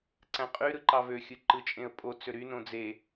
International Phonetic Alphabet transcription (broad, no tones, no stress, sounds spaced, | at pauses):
ǀ æ̃ qʼ y ɾ ɯ ǃ ɑ v ø xʲ ɯ ǃ ɯ t͡ʃʼ ẽ ə̯ pʼ o t͡s ø ɾ y n õ d͡z e